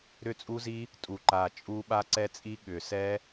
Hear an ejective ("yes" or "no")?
yes